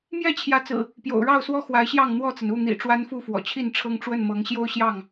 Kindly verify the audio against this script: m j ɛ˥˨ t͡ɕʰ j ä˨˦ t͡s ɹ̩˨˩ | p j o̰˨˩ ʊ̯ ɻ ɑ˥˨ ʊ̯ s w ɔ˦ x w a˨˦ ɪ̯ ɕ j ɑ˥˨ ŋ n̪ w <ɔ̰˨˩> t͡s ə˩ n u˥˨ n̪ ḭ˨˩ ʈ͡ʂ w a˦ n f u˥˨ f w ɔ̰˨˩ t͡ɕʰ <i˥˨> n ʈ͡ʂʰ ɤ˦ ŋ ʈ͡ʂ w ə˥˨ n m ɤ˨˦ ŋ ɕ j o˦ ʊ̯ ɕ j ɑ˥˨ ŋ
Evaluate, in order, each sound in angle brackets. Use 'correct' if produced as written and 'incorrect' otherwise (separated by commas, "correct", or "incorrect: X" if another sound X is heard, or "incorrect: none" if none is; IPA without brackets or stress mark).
incorrect: ɔ˥˨, correct